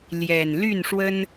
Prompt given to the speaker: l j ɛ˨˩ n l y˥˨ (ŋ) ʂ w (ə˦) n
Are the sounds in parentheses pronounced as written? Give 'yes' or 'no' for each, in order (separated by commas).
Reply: no, yes